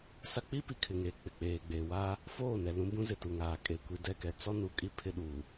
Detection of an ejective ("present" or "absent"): present